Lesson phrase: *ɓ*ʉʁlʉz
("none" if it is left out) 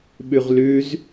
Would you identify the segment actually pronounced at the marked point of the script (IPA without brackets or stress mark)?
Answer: ɓ